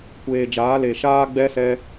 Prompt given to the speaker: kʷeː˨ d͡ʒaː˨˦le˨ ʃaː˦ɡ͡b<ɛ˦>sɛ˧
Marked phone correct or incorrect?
correct